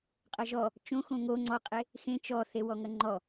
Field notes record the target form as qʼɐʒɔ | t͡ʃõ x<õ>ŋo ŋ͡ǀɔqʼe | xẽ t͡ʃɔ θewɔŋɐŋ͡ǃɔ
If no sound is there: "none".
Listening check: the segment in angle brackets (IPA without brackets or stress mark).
õ